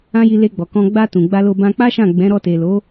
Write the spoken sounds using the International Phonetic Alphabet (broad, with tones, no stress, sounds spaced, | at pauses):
ã˦ j i˧ l e˧ ɡ͡b ɔ˨ k ɔ̃˧ ɡ͡b a˧ t ũ˨ ɡ͡b a˧ l o˧ b ã˧ k͡p a˦ ʃ ã˦˨ ɡ͡b ɛ̃˨˦ ɾ ɔ˧ t e˨ l o˨˦